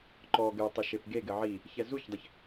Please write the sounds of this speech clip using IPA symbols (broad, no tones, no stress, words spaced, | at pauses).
ǃɔ ɡɘ tˤɘʃepɡeɡɘ ʕi | çɛzuçdˤɘç